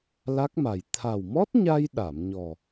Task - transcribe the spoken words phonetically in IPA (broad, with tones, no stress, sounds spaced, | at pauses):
l a˦˥ k̚ m a˨˩ j t̪ʰ a˨˩ w m ɔ˦˥ t̚ ɲ a˧ j ɗ a˨˩˨ m ɲ ɔ˨˩